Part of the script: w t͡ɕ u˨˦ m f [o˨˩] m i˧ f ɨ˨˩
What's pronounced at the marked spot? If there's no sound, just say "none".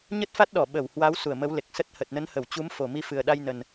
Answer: o˨˩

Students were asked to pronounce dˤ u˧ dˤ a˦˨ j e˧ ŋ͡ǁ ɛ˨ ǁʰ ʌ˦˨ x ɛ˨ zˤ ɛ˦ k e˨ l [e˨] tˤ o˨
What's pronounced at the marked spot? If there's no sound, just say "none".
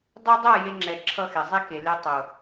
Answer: e˧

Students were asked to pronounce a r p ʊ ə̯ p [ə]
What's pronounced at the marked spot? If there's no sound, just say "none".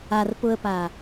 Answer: a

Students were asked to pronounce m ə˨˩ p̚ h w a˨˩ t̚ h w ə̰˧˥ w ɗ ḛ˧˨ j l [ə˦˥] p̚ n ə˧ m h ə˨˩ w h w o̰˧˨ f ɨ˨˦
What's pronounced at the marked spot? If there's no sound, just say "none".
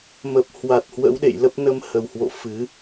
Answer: ə˦˥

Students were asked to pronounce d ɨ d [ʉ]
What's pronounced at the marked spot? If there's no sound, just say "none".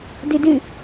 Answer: ɨ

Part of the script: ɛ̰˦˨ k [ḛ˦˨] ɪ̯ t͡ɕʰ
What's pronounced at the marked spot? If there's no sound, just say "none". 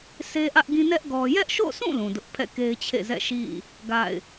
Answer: e˦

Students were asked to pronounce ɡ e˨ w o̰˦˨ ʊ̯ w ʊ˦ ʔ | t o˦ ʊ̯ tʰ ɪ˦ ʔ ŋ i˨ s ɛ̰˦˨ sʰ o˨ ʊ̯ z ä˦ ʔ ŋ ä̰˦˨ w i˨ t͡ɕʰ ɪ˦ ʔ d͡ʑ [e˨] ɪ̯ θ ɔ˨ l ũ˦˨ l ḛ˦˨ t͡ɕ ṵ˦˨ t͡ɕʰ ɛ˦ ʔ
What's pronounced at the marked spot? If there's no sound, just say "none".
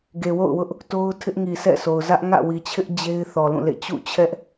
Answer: e˦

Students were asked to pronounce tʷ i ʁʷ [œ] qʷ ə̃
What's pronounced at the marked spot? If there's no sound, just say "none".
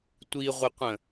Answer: ə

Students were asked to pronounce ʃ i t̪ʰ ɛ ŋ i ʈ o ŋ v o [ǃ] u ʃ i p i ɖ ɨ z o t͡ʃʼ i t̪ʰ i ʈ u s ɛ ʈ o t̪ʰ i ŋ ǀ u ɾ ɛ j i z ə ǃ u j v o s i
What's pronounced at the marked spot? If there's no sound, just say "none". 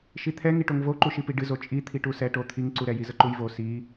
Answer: ǃ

